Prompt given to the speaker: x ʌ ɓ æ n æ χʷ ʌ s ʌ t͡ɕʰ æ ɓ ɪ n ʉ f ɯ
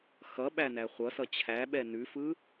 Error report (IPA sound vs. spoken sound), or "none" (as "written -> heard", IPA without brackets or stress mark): ɪ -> ɛ